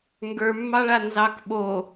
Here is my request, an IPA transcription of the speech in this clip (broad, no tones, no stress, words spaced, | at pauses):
ŋɡə˞mːɑɭa nzɑk ɓo